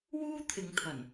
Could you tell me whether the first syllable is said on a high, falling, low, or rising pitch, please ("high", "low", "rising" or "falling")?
high